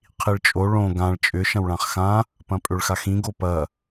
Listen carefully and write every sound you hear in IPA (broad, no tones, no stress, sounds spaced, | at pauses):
qʰ i ɭ t͡ʃʼ o ɭ õ ɡ ã ɭ t͡ʃʼ ʏ ʃ ɐ̃ w ɭ ã χ x ã | p ɐ̃ pʼ ʏ ɭ x a x ĩ ɡ o p ɐ